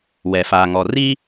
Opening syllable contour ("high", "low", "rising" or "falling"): low